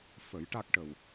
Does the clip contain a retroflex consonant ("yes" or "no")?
yes